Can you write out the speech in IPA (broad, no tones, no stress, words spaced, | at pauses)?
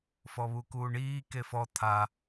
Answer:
fɔβukuːɳiː kefɔ t̪ʰa